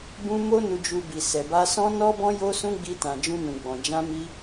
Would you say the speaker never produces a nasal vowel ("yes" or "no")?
no